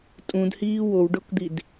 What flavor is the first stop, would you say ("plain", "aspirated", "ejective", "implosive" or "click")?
ejective